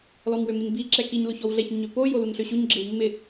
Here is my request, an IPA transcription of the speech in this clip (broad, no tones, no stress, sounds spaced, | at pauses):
l ɔ m w ø m i n b i ǁ ɛ k i ɲ l o ç ɔ w ɮ ɛ ç ɲ ø p o j o l u n ɬ ø ɕ u ɲ ɡ͡ǁ ɪ w mː ɪ